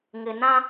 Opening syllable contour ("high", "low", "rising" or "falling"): low